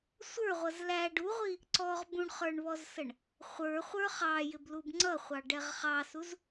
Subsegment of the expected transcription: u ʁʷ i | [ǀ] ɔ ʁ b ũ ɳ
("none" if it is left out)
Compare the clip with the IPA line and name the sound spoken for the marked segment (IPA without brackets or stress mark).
ǀ